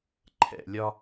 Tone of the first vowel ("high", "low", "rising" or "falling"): low